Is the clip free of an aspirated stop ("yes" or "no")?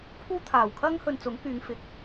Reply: no